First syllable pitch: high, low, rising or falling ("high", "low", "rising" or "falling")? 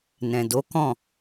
low